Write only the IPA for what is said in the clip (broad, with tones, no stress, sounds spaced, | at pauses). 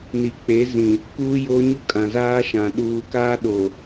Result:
n i˨ k͡p e˨˦ z ĩ˨ | k uː˦ j oː˦ ɲ u˦ kʼ ã˨ z aː˦ ʃ ã˨ ɗ uː˨ k aː˦ ɗ o˨